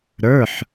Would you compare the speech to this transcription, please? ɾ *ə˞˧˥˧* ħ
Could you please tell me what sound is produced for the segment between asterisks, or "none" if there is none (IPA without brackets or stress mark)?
ə˞˧˥˧